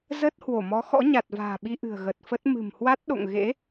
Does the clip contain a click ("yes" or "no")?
no